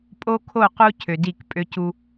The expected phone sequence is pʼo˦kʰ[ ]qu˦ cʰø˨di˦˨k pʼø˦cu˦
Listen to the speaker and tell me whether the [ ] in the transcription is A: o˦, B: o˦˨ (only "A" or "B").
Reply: B